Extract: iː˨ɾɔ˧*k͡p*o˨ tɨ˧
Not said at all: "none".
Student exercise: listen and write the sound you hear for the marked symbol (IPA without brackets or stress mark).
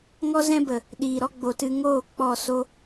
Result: ɡ͡b